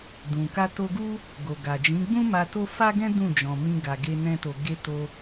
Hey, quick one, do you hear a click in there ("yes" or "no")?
no